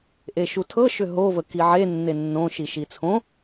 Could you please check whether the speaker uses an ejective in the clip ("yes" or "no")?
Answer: no